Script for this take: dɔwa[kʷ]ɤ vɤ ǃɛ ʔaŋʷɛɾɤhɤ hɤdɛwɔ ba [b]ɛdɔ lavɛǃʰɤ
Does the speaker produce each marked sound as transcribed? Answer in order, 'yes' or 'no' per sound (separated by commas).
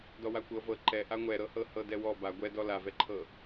yes, no